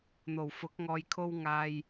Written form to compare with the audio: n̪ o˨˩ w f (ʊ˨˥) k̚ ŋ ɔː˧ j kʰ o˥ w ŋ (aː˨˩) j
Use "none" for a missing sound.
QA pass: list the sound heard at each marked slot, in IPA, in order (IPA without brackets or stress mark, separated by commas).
ʊ˨˥, aː˥